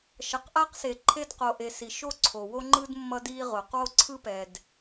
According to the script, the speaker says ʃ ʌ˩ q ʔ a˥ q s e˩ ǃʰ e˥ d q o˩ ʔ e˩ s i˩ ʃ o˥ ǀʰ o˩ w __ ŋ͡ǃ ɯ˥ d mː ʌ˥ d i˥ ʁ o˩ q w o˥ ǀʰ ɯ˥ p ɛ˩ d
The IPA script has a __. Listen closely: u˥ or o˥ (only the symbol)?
o˥